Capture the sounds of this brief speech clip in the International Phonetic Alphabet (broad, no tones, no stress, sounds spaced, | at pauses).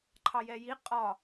ǃʰ ɑ j ɛ j i qʼ ɒ